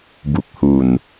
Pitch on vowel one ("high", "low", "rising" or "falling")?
low